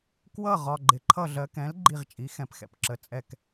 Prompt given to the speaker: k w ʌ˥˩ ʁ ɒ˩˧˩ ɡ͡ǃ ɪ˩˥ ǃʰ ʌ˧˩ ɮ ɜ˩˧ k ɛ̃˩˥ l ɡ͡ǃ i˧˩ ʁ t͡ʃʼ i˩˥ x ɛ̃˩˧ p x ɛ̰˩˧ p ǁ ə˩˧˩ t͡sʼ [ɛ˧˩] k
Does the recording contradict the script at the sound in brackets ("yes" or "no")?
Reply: no